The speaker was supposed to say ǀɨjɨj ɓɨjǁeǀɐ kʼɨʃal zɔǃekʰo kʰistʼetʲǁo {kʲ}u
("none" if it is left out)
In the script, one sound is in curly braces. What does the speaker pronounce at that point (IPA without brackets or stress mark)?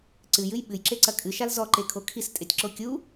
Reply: kʲ